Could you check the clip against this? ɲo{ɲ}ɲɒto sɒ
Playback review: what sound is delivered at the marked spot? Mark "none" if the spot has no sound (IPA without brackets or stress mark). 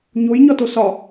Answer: j